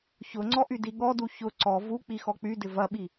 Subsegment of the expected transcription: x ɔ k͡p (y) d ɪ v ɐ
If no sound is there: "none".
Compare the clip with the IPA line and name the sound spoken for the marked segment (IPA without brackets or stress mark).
y